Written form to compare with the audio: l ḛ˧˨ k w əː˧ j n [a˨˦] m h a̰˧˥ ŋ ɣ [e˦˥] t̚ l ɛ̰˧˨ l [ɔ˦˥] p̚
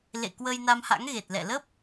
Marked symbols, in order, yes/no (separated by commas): no, no, no